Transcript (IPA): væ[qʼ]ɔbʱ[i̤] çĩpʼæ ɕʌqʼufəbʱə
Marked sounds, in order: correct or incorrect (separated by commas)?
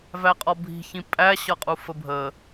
correct, correct